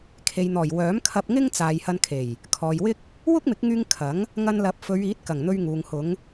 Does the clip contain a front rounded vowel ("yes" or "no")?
yes